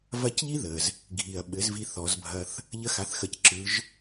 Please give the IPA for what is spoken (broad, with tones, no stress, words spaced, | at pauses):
vɐ˧˥c ʎi˥ðə˩z | ɡʱi˩ɐ̯ɓɘ˩˧z vi˧θɔ˩˧zbʱɐ˧θ | ʎə˧xa˩˧θxə˩˧cǁɯ˩˧ʒ